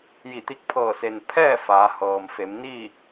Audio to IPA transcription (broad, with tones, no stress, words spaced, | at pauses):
ji˧˩t̪i˧k̚pʰɤː˧˩se˩n pʰɛː˥˨ faː˩˧hɤː˩mfe˩˧m ni˥˨